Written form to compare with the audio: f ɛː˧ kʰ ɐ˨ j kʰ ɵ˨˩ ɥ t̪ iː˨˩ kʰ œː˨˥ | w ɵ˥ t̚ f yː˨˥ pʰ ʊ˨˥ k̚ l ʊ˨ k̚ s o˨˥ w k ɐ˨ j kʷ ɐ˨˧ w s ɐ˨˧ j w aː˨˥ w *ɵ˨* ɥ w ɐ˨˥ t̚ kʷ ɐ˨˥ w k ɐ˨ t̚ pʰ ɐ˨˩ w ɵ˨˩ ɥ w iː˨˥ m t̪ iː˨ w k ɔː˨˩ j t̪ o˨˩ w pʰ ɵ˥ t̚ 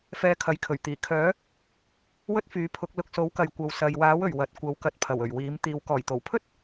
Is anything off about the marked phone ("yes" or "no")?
yes